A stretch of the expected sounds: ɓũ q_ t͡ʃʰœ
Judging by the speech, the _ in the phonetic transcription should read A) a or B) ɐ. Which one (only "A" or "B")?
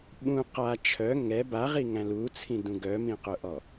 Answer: A